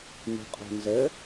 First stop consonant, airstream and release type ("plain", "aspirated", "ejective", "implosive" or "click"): ejective